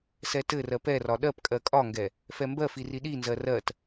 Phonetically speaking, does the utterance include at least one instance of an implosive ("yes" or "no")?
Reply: yes